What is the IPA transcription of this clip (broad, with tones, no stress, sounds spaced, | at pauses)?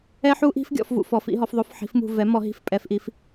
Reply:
ɛ˦˥ ħ u˦˥ ʔ i̤˦˥ f ɡʲ ɔ̰˦˨ f v ṵ˦˨ f ɔ˩˥ f ḭ˦˥ ɦ ɔ˩˥ f ðˤ o˦˥ f ħ i̤˩˥ f m ṳ˦˨ v ɛ˩˥ m ɔ˨˩˦ ɦ i̤˦˨ f pʼ ɛ˨˩˦ f ʔ i˩˥ f